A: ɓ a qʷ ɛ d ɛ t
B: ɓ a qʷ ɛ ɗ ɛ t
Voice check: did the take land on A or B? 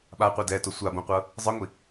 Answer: A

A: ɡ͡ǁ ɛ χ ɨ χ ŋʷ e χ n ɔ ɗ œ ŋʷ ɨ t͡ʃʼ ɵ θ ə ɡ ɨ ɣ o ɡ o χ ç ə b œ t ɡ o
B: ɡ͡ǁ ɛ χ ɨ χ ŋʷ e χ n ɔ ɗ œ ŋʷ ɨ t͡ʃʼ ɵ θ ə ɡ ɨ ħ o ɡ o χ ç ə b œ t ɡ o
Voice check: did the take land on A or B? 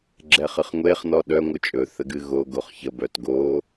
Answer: A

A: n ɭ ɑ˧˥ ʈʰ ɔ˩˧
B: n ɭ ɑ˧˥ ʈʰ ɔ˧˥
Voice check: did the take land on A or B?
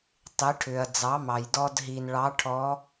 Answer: B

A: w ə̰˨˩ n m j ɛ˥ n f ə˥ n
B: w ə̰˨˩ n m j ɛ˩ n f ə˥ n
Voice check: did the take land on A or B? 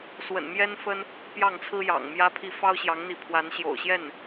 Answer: A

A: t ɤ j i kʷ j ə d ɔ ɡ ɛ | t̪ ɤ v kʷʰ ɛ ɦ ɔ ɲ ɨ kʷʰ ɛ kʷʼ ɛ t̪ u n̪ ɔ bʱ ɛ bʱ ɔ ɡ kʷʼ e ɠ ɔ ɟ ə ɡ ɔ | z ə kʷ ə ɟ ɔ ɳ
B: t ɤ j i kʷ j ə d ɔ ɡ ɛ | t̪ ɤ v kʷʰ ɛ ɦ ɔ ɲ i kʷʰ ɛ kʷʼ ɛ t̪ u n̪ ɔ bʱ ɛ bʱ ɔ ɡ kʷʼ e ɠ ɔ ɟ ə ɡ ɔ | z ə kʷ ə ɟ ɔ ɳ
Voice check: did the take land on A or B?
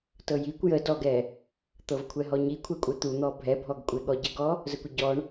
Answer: B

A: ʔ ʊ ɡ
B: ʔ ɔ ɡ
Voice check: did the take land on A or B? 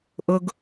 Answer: A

